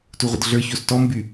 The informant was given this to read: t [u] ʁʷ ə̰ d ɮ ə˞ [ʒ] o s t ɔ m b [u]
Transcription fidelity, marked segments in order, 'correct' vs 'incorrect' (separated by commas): correct, incorrect, incorrect